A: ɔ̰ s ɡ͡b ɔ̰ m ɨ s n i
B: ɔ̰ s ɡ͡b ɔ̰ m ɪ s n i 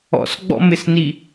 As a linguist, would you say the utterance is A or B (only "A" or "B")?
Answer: B